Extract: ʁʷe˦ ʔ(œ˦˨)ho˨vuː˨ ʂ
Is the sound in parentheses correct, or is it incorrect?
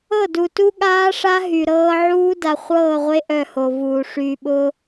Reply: correct